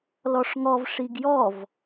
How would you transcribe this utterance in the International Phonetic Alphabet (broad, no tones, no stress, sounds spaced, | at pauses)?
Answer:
l ɔ ʂ ŋ ɔ v ʂ i ɡ j ɔ v